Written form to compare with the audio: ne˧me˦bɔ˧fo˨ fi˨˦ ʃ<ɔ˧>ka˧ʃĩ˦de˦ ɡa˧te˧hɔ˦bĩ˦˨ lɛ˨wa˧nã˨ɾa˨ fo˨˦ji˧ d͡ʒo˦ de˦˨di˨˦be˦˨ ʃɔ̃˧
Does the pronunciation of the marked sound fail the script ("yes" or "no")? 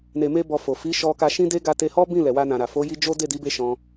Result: no